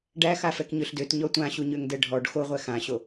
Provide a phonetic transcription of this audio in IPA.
ɖæ xafɛkɲøɬdøt ɲɔtʷãɕu ɲøŋdɛɖʱɔɖ xoʁʷɛ xãɕo

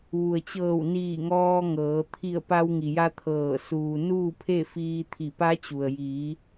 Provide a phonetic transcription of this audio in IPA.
ʋu˩ə̯t͡ɕɤː˧˩wniː˧˩ ŋɔː˧ŋɤː˩˧ t̪ʰi˧˩ə̯pa˧w ŋi˩ja˧ t̪ʰɤː˧˩ suː˩ nuː˥˨pʰe˥˨fiː˧ t̪ʰi˧˩pa˧˥t͡ɕu˩ə̯ jiː˩˧

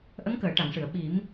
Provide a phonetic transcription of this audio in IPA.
ʔə˧˥ŋkəː˨˩˨ ʈa˨˩˨ŋʂɨ˨˩˨ə̯ ɓi˨˩˦m

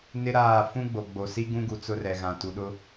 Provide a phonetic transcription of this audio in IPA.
nɪ˦ ɾaː˦˨ fũ˦ɡ͡bo˨ɡ͡bo˨ si˦ɡũ˦ɡu˨ t͡sʊ˦rɛ˨ɣã˨ tu˨ɗʊ˦

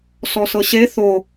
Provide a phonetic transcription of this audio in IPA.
sɔsɤɕe θo

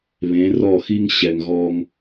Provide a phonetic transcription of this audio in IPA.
βẽ˨˦rɔ˦˨xi˦ŋ ɕɛ˨ŋɣɔ˧ŋ

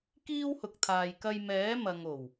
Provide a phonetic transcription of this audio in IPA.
kiː˥whʊ˨k̚t̪ʰaː˨jkɐ˧j mɛː˨˥mɐ˨ŋo˨˩w

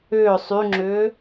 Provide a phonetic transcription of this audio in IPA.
ʏː sˤyŋ͡ǁʏː

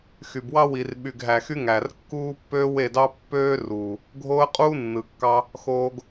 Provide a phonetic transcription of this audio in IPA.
xy˨bwɑ˦wi˨r ɓy˨ɡɦæ˨xy˧ ŋæ˨rkːuː˦pːø˦ we˦˨dɑ˦pːøː˦ruː˨ | ɡʱoː˦ə̯qʼuː˦nːɯ˨kːɑ˧ | xoː˦ɡ

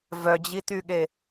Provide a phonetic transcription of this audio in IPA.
vœd͡ʑityɠe

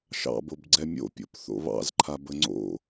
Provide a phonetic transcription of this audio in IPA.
ʃɑ̰bobɡ͡ǀɛ mʲo̰pʲo̰p θo̰βɑ̰z ǃʰabəŋ͡ǀo̰

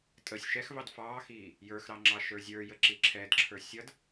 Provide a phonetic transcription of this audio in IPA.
tʼəsʲ ʃɛxvɑd fɑːxiː | jə˞xɾɑ ŋ͡ǁɑʃə˞zʲə˞jə ǁiǁʰɛdǁʰə˞ sʲʌd

